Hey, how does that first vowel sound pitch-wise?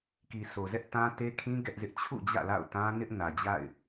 low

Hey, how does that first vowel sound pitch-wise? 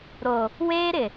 low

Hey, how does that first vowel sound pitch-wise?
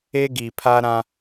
high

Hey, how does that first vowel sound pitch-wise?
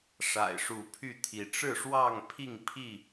low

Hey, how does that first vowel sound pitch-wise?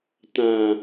low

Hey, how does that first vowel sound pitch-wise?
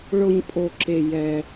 high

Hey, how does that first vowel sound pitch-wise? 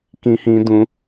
high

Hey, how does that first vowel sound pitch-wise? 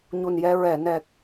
low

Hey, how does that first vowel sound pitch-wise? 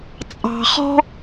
low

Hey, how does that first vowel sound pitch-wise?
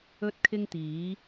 high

